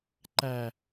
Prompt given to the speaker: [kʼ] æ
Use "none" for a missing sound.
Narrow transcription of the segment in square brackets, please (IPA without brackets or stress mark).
ǃ